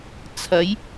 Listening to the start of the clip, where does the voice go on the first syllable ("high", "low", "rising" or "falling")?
rising